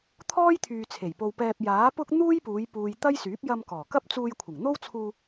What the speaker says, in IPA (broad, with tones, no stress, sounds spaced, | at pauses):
t̪ʰ ɔː˥ j t̪ʰ yː˨ t͡sʰ e˨˩ j p o˧ w p ɛː˧ p̚ j aː˨˥ p ʊ˥ k̚ n̪ uː˥ j p uː˨˧ j p uː˨ j t̪ ɐ˥ j s yː˨˥ p̚ j ɐ˧ m k ɔː˨˩ k ɐ˥ p̚ t͡s uː˧ j kʷʰ ɪ˨˩ ŋ n̪ o˥ w t͡sʰ uː˧